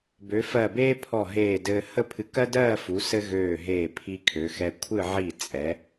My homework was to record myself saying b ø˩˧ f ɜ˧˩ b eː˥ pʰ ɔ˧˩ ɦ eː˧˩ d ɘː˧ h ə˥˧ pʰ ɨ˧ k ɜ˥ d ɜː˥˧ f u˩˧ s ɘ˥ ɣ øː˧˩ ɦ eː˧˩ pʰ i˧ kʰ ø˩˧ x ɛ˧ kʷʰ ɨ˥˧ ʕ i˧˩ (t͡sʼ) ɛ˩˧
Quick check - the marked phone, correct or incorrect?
correct